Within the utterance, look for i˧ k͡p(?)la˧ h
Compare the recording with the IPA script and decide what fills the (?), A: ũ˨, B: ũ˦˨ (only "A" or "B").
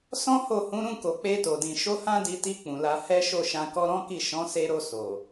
A